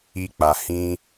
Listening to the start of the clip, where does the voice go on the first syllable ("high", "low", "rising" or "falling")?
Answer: high